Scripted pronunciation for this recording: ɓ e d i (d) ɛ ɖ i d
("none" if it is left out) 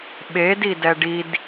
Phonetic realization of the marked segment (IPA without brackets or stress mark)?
d